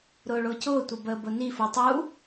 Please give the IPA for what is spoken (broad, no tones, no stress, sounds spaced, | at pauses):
ɾ ʊː ɭ ʊː c ʊː tʷ ə b əː b ʊ n i f u tˤ u